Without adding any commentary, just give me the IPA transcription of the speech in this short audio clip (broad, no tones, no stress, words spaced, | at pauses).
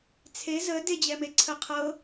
t͡sʰe zə ded͡ʑɛmeǀʰə qʰɤ